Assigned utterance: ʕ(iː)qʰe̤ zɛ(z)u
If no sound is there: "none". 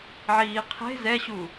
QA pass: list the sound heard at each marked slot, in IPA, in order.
iː, ɕ

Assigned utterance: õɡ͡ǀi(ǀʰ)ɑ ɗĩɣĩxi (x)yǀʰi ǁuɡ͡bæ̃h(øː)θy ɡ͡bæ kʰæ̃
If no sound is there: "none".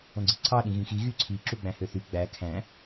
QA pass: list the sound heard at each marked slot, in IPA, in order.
ǀʰ, ɣ, ø

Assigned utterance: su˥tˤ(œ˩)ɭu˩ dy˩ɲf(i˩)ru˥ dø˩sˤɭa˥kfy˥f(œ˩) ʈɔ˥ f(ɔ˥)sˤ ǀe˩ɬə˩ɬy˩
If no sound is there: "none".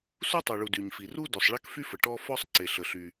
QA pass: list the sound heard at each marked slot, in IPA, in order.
œ˩, i˩, ə˩, ɔ˥

